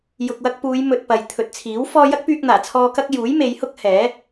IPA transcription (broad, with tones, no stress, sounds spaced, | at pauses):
j ʊ˨ k̚ w ɐ˧ k̚ p uː˨˧ j m ɵ˧ t̚ p ɐ˨ j t̪ʰ ɵ˨ t̚ t͡sʰ iː˨˥ w f ɔː˧ j ɐ˥ k̚ p yː˧ k̚ n̪ aː˨˩ t͡sʰ ɔː˧ k ɐ˥ k̚ j uː˨˥ j m e˨˧ j h ʊ˥ k̚ h ɛː˨˥